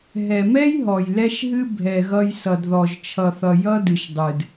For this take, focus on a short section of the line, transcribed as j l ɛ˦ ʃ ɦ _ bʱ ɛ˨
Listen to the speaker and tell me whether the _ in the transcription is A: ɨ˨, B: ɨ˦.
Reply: B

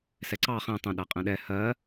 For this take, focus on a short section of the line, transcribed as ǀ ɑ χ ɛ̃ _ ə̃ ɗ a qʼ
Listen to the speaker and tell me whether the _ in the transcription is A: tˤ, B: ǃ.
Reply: A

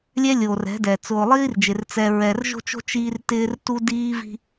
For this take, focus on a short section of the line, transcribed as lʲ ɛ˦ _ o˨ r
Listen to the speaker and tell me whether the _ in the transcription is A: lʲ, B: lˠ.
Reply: A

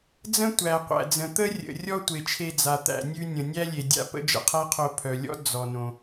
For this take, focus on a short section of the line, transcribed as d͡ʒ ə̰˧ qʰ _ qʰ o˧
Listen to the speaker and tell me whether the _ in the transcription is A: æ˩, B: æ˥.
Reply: B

